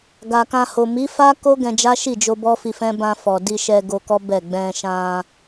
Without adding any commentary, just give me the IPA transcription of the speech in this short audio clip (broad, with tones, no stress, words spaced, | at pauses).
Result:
ɡa˨kã˧ho˨ mi˨˦fa˦ko˦ ɡɛ̃˧d͡ʒa˦ʃi˦˨d͡ʒo˧ bɔ˦fi˧fɛ̃˦ bã˧fɔ˨ di˧ʃɛ˧ ɡo˧kɔ˦ bɛ˦˨ ɡ͡bɛ̃˧ʃã˧